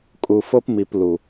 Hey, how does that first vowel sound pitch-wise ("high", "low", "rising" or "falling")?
low